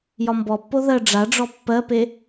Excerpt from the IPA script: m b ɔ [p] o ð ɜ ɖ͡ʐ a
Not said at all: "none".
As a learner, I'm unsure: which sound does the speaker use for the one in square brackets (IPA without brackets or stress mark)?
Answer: pː